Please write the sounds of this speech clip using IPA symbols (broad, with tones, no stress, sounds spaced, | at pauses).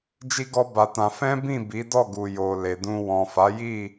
d͡ʒ i˦ ɡ ɔ˦ b a˧ t ã˧ f ɛ̃˦ b ĩ˦˨ b i˨˦ d ɔ˦˨ ɡ u˨ j o˨ l e˨ d ũ˧ w ɔ̃˨ f a˨˦ j i˦˨